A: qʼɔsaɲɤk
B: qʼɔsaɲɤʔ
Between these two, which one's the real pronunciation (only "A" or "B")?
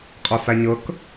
A